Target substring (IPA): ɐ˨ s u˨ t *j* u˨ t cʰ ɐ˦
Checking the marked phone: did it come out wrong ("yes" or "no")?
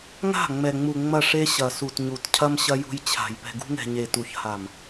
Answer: yes